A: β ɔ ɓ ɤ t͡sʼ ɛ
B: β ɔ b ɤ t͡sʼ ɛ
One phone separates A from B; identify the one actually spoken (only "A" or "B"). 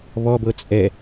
B